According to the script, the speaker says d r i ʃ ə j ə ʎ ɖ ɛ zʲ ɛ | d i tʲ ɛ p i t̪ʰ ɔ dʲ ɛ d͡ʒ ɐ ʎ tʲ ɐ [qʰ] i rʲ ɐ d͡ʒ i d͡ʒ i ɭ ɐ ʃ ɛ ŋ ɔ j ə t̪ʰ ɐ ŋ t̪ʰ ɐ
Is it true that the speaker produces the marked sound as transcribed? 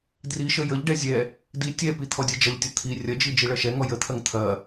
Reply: no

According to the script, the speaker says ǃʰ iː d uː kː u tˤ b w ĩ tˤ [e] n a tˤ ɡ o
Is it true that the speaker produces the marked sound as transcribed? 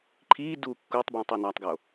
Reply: yes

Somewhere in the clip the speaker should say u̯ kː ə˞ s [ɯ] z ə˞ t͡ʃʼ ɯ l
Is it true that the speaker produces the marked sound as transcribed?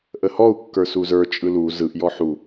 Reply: no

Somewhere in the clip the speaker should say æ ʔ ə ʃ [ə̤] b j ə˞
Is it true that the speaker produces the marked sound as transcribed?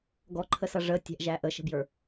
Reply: yes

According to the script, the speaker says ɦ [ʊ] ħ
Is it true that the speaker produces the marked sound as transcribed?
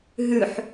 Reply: no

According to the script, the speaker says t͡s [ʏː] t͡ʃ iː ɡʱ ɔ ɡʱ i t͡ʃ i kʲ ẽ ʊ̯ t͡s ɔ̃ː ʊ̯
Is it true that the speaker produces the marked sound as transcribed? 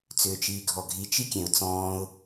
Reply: yes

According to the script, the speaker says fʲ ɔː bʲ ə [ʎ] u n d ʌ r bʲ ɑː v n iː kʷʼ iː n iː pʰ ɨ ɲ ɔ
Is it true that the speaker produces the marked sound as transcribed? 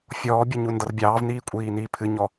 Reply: no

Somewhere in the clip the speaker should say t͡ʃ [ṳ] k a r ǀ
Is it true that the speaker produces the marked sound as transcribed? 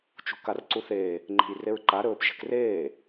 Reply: yes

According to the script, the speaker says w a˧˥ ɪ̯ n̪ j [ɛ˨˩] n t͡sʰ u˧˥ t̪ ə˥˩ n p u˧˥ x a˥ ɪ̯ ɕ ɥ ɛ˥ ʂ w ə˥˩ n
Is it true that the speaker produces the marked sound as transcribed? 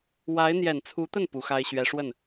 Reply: yes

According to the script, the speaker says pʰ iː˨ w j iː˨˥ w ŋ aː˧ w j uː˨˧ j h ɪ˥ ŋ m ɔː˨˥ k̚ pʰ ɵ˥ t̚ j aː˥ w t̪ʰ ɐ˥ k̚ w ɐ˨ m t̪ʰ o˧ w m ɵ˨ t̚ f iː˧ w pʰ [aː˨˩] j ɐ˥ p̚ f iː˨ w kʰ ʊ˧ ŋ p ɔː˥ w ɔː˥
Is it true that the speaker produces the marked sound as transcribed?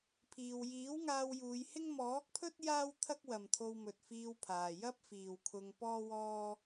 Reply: no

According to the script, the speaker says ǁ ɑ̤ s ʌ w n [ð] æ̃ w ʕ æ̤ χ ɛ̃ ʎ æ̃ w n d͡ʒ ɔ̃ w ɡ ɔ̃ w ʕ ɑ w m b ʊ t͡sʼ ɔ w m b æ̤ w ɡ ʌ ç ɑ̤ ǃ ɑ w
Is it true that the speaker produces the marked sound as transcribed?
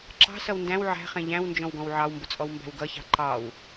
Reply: no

